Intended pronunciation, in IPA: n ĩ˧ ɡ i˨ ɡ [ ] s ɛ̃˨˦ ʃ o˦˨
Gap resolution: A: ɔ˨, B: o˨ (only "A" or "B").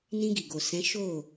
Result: B